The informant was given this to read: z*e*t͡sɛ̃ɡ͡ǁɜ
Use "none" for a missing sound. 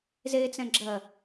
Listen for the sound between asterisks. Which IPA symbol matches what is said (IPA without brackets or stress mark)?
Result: e